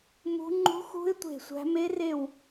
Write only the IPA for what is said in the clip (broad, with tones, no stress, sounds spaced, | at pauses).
m ṳ˦˥ ŋ͡ǃ ṳ˦˥ x ṳ˦˥ ɪ̯ tʷ e̤˦˨ sʷ æ̤˦˥ m e˦˥ r e˦˨ w